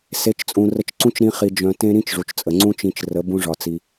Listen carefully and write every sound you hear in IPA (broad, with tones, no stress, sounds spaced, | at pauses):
s e˨˦ t͡ʃ t͡sʼ ũ˨ r ə˧ t͡ʃ ǀ ũ˦ t͡ʃ ɾ ĩ˧ χ i˧ d͡ʒ œ̃˧ t ẽ˦ ɾ ĩ˦ t͡ʃ ʐ u˨ t͡ʃ t͡sʼ ə˨ ŋ͡ǀ ũ˦ t͡ʃ ĩ˧ t͡ʃ r ə˨˦ b ũ˦ ʐ ɒ˧ t͡s i˧